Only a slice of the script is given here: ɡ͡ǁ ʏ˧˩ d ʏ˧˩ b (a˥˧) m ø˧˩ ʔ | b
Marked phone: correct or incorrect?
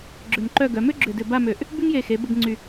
correct